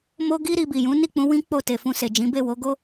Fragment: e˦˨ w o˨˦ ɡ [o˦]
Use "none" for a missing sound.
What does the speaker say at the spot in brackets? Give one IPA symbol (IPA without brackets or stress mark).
o˦